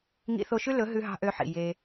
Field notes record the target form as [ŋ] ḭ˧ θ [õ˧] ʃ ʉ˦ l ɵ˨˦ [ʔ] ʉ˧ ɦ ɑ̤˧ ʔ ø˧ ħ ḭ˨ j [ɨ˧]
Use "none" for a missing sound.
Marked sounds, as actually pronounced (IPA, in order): ŋ, o˧, ɦ, e˧

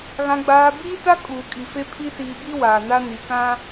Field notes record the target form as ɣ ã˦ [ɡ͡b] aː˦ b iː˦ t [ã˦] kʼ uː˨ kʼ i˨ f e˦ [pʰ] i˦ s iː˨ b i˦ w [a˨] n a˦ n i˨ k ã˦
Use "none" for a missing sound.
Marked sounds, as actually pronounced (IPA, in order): ɡ͡b, a˦, pʰ, aː˨

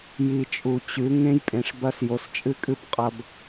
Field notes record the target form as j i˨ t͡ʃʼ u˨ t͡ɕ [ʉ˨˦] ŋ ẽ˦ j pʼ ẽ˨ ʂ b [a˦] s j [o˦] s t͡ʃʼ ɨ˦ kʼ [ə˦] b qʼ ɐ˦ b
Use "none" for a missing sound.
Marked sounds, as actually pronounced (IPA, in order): ʉ˨˦, ɐ˦, o˨, ɨ˦

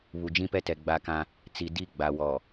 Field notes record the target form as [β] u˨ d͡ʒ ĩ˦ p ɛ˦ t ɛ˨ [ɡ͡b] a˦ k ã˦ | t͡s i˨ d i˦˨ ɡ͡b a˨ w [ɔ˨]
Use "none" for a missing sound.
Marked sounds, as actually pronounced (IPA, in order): β, ɡ͡b, ɔ˨

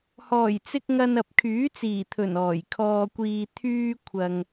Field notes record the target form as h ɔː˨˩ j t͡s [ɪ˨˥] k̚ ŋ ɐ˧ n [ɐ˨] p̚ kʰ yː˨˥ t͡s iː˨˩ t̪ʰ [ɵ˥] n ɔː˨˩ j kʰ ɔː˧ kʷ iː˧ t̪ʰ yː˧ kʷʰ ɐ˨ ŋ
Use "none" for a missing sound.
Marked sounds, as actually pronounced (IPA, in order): ɪ˧, ɐ˨, ɵ˨˩

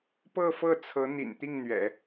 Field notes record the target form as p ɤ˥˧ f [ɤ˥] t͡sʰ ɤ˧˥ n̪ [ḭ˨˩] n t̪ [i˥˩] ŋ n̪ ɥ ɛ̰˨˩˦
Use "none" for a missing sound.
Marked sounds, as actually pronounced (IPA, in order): ɤ˥˩, ḭ˨˩, i˥˩

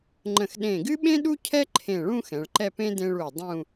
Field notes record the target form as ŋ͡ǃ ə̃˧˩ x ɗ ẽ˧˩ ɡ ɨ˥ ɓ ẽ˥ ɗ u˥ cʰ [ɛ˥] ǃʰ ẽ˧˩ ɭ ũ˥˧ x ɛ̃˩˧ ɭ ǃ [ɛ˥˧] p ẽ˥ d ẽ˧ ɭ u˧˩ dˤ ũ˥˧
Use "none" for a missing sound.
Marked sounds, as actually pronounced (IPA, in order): ɛ˥, ɛ˥˧

